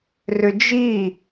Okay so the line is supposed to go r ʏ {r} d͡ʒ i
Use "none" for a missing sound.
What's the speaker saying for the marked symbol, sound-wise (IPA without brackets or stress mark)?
none